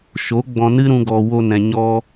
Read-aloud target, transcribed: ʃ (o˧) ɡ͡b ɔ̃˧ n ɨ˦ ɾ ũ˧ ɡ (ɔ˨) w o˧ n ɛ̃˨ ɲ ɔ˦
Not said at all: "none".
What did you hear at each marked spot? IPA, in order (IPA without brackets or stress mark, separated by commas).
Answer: o˨˦, ɔ˨